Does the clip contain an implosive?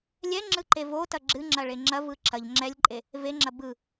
no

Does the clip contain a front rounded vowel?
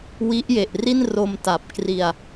no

